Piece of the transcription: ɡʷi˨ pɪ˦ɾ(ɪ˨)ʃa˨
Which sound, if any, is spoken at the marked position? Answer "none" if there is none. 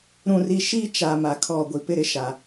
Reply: ɪ˦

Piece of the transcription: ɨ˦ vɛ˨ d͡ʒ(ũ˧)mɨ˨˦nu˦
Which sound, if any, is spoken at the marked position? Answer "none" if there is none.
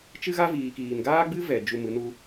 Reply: u˧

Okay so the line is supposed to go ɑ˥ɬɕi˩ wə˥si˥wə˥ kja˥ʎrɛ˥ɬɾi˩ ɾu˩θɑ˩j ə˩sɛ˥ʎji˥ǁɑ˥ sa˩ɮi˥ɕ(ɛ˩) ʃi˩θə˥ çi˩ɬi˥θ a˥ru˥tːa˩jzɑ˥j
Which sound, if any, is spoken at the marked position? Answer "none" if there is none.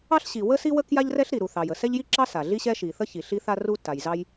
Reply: ɛ˥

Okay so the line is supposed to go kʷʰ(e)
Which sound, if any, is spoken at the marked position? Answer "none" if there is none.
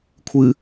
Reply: ɨ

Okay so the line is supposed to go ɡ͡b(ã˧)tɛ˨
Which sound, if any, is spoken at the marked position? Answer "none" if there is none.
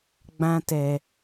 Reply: ã˧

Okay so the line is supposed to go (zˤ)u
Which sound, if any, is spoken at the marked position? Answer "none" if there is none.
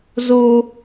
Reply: z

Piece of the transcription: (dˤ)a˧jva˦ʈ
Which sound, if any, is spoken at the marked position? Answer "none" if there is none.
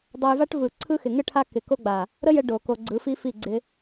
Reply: dˤ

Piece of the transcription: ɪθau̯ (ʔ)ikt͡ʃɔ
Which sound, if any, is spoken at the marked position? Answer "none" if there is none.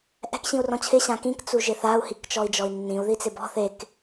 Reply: h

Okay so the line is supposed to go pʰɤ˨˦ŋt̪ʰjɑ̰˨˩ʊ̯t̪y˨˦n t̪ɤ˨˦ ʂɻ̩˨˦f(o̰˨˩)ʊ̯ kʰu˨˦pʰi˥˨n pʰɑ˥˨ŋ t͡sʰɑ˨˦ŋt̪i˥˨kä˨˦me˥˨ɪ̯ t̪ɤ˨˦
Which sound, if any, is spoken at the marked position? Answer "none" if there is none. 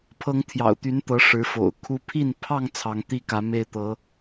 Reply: o̰˨˩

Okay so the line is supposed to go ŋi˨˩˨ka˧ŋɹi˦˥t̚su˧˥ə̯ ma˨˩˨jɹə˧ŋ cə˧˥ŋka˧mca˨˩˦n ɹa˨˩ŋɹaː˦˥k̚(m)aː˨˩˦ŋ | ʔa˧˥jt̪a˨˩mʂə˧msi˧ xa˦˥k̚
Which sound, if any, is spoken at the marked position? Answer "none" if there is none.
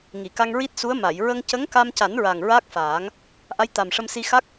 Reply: f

